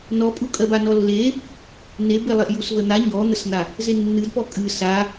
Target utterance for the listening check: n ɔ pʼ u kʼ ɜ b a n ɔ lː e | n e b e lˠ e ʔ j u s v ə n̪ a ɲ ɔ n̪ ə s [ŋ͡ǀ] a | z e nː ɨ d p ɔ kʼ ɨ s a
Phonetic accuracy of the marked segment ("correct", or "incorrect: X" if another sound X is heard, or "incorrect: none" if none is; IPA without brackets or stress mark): incorrect: n̪